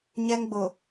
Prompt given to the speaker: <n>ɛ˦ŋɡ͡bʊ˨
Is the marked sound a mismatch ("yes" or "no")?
yes